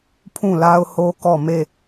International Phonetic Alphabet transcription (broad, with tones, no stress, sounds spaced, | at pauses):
pʰ ũ˦˨ l a˦ ʊ̯ h o˦ k ɔ˦˨ m e˦˨